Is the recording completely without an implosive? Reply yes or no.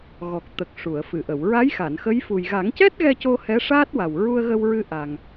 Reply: yes